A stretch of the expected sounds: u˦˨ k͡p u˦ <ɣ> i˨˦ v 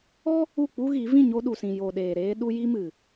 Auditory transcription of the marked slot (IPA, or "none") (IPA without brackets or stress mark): ɣ